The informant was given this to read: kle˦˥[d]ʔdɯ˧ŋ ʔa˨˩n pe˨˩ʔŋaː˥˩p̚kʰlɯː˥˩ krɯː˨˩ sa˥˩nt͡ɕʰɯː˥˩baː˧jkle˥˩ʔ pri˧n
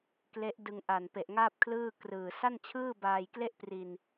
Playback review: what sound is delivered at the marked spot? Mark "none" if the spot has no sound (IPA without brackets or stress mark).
none